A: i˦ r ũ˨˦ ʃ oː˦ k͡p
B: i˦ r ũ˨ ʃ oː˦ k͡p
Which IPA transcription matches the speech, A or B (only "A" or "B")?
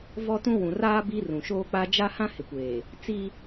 B